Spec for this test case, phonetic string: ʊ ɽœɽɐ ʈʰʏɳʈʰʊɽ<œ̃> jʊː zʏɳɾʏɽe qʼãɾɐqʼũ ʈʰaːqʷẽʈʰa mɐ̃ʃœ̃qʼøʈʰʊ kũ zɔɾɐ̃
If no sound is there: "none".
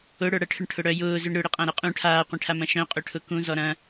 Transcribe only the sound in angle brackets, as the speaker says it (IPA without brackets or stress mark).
œ